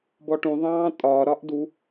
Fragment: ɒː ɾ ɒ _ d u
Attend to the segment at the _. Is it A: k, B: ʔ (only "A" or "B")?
B